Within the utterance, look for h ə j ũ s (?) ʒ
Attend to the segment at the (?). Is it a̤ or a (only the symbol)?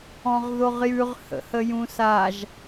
a